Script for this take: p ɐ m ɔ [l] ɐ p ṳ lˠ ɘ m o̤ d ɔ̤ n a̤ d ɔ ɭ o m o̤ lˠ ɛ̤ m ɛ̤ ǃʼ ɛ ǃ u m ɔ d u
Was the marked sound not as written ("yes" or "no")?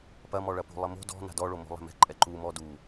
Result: yes